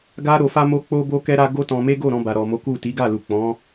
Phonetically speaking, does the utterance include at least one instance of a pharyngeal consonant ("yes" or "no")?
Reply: no